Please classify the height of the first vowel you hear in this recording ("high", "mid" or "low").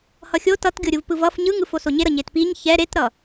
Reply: mid